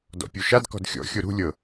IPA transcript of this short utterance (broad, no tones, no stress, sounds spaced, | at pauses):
d ɔ̰ pʲ o ʃ a d k ɔ̤ d xʲ ɔ̰ xʲ o ɾ ṳ lʲ ɤ